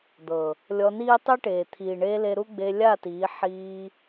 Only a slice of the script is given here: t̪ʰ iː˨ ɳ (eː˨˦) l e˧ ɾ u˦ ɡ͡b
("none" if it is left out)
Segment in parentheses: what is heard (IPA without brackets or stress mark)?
eː˧